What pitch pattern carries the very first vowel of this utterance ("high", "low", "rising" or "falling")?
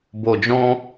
low